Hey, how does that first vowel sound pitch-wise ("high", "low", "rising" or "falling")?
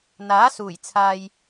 rising